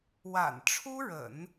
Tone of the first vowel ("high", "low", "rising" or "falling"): low